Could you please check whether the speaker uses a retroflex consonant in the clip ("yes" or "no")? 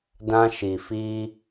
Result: no